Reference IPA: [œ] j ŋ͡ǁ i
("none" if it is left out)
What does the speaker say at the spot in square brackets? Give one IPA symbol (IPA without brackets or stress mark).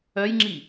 œ